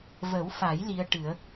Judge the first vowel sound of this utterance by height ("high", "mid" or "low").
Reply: mid